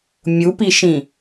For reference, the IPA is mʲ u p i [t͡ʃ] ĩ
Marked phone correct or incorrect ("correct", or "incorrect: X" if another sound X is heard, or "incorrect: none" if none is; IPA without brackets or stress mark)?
incorrect: ʃ